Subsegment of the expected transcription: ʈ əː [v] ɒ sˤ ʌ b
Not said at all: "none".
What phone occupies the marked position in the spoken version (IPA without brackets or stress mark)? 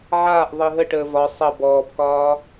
v